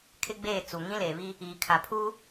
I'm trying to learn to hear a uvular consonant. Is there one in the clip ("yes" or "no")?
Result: no